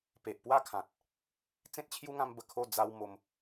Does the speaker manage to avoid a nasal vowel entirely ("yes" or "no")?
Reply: no